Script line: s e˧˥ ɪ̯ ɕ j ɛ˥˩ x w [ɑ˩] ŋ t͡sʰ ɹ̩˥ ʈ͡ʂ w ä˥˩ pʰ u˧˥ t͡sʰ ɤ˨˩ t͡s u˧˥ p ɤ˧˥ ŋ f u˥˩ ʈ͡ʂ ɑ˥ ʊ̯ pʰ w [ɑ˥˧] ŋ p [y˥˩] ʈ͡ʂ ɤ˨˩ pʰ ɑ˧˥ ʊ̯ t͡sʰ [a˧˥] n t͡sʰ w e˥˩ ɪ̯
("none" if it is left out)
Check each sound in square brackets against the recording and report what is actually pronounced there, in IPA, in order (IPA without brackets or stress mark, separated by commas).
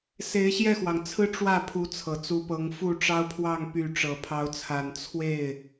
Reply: ɑ˩, ɑ˥˧, y˥˩, a˨˩